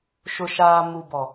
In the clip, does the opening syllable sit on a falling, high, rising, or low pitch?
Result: low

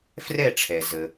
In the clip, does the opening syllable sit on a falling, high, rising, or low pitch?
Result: falling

